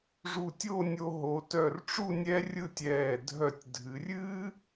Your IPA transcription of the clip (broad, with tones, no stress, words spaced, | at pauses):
ʐu˧˩tʲo˥˧nʲo˧ ɦo˩˧tœ˧˩rʈ͡ʂu˥˧ nʲɛ˥rʲɯ˥˧tʲɛː˧˩ dʱœ˧˩tʲ dʱɨ˩˧rʲɨː˥